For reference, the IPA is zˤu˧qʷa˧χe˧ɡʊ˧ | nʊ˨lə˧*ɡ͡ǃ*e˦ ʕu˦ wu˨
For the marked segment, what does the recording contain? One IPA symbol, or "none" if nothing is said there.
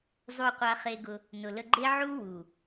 ɡ͡ǃ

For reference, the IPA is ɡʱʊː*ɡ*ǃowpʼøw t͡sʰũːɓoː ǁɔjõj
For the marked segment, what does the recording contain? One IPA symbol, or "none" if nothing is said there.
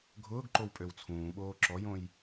ɡ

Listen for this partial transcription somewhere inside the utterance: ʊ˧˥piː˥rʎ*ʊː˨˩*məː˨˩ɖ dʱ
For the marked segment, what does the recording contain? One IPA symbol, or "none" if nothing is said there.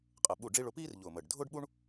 ʊː˨˩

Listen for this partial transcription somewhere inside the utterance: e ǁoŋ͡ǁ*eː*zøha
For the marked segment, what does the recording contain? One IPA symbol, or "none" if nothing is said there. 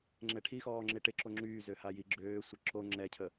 yː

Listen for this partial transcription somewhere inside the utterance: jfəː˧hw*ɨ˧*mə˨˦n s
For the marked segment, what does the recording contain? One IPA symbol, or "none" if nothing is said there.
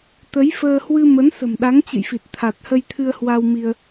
ɨ˧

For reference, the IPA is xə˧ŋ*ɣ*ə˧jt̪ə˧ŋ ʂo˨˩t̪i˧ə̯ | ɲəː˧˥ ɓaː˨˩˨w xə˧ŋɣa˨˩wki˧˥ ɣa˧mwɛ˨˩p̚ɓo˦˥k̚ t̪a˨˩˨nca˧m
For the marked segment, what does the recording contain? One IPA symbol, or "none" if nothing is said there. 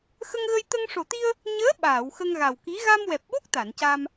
ɣ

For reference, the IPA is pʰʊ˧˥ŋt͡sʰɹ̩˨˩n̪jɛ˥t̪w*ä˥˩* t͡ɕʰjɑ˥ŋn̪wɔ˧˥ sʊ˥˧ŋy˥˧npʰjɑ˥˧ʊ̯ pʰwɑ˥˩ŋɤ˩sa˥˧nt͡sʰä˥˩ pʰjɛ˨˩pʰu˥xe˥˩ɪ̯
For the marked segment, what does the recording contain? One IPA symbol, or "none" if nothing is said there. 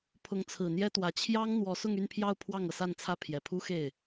ä˧˥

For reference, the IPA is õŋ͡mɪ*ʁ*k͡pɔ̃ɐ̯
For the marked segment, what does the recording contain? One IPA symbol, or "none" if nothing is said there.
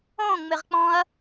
ʁ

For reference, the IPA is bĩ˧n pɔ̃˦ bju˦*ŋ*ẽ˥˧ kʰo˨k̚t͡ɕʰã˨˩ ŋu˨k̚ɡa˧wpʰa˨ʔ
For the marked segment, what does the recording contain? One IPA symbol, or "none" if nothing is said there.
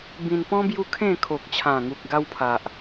kʰ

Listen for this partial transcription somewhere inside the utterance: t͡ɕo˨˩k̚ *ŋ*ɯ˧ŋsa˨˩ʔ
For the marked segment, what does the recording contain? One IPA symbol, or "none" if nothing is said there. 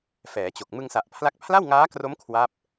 m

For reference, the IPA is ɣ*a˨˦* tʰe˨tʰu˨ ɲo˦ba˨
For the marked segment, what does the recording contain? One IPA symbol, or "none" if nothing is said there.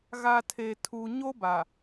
a˨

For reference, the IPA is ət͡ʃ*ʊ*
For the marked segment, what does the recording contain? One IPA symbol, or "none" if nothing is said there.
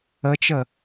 ə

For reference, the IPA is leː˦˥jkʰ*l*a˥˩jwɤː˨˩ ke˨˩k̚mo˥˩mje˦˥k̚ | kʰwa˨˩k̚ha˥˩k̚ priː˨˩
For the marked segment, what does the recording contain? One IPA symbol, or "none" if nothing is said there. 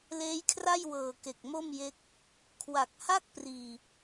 r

